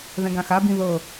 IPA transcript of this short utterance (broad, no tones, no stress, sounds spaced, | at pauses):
ð ɛ̃ ɡ ã x a b ĩ ð ɤ